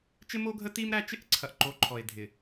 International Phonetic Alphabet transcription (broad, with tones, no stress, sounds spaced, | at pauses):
t͡ʃ ɪ˦ m o˦ ɡʱ ə˦ t i˦ m ɾ æ˦ t͡ʃ ɪ˦ ʔ ǀʰ ɐ˨ ʔ ǃ o˨˦ ǃʰ ɔ˨ e̯ dʱ ɪ˨